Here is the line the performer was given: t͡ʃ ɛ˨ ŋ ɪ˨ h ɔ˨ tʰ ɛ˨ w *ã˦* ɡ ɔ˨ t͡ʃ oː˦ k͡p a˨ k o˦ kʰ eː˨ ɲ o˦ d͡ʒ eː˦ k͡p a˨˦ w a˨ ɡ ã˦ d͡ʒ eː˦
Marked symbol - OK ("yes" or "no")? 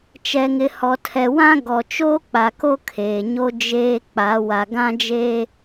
yes